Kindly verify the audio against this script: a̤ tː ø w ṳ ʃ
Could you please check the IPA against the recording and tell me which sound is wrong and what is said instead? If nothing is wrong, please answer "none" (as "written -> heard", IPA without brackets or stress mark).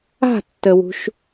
ø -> ə